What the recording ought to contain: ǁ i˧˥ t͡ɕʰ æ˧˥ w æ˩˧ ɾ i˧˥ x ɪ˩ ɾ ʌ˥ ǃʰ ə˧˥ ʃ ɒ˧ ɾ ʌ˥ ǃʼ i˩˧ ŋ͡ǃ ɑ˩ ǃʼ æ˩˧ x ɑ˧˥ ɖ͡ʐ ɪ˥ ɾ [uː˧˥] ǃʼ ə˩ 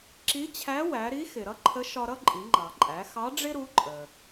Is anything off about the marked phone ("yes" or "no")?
yes